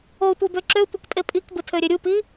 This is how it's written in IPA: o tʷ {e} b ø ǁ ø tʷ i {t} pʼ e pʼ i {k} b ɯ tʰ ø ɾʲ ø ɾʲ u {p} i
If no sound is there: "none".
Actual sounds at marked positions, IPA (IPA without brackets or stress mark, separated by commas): e, k, k, p